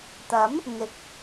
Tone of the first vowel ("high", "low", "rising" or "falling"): rising